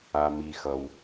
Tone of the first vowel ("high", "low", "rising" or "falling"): low